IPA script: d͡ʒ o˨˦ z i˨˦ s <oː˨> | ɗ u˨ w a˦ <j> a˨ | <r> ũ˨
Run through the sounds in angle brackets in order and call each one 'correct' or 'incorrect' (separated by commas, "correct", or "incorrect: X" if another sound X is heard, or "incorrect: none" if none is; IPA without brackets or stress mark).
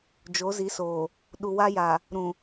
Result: correct, correct, incorrect: ɾ